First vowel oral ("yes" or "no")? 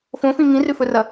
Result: no